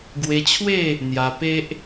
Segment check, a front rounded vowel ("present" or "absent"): absent